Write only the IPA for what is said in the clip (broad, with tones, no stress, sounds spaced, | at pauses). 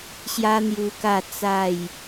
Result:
ɕ j a˦ n̪ j u˧ k a˥˧ t͡s a˥˧ j